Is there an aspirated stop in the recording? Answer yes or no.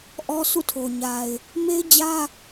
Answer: yes